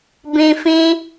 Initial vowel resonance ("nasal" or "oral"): nasal